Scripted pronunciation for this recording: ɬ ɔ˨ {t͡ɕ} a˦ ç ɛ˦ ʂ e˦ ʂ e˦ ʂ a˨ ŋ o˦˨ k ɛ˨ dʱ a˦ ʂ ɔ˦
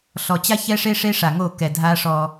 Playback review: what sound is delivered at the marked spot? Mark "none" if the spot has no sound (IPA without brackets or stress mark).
t͡ɕ